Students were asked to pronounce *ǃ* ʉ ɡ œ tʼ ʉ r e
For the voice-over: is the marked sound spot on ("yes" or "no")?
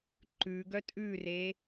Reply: yes